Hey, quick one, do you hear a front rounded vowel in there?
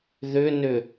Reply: yes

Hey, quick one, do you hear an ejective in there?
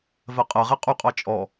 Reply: yes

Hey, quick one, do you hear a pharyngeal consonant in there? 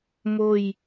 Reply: no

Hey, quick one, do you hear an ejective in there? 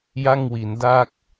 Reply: no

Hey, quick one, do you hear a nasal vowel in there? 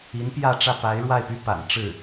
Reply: no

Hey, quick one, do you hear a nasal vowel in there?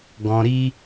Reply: yes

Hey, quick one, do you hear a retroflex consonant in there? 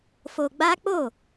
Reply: no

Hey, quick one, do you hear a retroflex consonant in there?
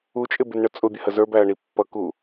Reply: yes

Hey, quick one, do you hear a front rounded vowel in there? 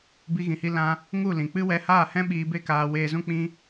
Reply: no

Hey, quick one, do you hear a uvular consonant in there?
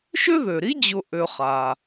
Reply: yes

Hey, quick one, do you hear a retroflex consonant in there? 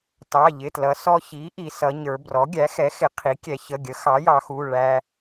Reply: yes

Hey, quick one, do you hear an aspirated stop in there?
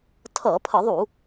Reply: yes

